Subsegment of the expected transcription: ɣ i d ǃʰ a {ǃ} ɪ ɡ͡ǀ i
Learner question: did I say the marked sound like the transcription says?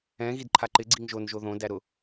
yes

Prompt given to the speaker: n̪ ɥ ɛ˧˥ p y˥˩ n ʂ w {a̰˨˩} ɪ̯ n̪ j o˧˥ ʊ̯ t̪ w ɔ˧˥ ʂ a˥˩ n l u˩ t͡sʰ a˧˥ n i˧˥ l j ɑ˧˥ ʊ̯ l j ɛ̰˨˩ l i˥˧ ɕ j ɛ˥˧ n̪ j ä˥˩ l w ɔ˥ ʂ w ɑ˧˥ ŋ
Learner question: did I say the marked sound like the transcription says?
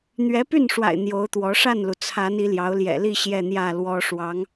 yes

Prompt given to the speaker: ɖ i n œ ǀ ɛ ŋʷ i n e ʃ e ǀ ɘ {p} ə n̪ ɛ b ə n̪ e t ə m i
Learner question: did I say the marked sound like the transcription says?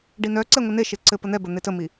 yes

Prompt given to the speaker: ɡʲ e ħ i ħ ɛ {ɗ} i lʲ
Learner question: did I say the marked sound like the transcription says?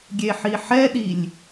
yes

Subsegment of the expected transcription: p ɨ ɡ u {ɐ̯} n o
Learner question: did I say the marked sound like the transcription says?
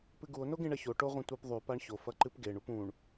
no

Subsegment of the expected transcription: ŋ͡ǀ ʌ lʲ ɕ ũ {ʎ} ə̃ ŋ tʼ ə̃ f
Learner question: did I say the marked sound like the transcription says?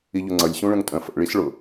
no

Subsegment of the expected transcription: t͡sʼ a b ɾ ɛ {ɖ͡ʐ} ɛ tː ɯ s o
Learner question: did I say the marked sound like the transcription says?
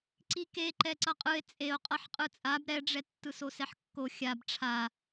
yes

